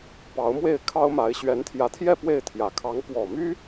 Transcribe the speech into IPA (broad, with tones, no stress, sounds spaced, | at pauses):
p ɑ˧˥ ʊ̯ m w e˥˩ ɪ̯ kʰ ɑ˥ ʊ̯ m a˧˥ ɪ̯ ɕ ɥ ɛ˧˥ n t̪ʰ j ä˧˥ t̪ʰ j ɛ˥˧ p w e˥˩ ɪ̯ t̪ʰ j ä˨˩ kʰ ɑ˧˥ ŋ p w ɔ˨˩ m y˥